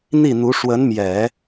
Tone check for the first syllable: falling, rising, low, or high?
falling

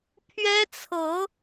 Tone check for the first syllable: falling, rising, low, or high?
high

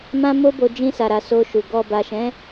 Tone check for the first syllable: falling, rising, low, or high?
high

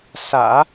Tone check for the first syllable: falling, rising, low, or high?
low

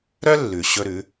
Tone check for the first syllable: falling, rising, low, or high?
high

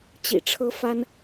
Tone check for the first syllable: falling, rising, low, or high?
low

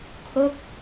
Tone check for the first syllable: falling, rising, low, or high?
falling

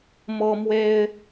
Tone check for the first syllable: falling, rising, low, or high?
high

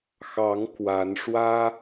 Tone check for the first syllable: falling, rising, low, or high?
rising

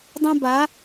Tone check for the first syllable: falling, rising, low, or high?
high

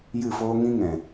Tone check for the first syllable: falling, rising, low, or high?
falling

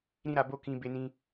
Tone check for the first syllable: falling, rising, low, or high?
high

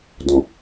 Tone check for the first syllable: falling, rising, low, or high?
low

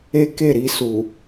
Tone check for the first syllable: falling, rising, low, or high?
high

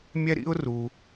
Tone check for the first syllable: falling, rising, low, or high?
high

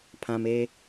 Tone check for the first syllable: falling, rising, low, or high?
low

